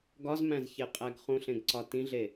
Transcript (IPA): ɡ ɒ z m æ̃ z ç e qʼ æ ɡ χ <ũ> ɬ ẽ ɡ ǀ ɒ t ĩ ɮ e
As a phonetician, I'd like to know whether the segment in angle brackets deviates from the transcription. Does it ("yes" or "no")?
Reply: no